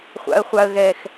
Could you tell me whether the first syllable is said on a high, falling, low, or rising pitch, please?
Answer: high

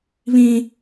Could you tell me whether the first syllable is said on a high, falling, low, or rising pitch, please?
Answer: high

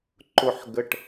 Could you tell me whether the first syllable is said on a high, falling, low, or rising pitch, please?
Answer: low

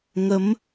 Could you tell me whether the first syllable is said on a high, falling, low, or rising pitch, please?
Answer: rising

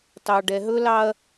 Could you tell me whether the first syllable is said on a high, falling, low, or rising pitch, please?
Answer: low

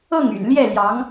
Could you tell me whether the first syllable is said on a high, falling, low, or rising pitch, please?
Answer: falling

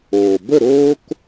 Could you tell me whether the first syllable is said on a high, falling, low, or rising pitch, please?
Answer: low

